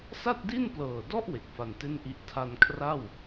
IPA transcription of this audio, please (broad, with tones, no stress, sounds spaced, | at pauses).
s a˥˩ t̚ d i˥˩ n p l ɤː˨˩ d ɔ˥˩ ʔ w e˨˩ k̚ f a˧ n t e˥˩ n ʔ i˦˥ ʔ tʰ a˧ n kʰ r a˥˩ w